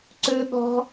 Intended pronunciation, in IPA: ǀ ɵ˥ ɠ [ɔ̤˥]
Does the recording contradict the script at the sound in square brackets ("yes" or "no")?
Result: no